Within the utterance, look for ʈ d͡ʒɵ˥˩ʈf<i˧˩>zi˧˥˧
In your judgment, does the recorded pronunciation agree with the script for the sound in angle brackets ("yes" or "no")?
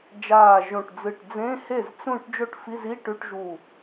no